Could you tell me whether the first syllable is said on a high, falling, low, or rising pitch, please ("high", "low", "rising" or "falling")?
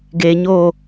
low